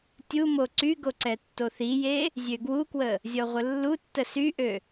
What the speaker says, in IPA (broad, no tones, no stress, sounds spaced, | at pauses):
tʲ u m o ǀ y ɡ o ǀ ɛ tː o θ i j e | zʲ ø ɡ w u k w ə | zʲ ɔ ʁʷ ə lː u tː ə s y ʔ ø